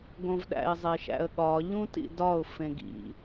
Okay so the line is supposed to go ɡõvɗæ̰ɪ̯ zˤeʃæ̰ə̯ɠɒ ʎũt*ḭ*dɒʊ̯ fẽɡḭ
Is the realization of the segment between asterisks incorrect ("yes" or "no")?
no